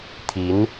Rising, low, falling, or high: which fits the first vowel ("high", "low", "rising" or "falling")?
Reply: rising